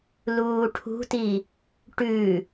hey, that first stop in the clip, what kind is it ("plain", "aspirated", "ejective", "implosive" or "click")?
aspirated